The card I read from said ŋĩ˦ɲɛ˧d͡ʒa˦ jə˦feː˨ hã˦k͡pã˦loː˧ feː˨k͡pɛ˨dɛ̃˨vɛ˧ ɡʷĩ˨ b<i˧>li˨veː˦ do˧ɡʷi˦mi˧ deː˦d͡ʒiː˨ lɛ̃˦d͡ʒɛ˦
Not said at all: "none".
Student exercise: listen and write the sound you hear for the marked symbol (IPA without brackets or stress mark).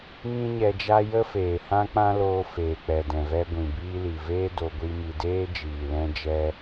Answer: iː˧